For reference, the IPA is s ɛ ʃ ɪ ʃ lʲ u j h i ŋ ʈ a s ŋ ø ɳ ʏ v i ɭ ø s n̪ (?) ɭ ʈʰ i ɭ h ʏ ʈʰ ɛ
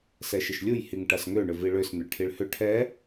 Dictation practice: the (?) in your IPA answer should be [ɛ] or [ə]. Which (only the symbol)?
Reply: ə